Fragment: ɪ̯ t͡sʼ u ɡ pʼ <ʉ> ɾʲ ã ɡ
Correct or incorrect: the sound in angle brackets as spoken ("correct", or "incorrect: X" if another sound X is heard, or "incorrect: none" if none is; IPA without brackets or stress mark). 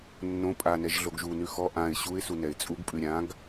correct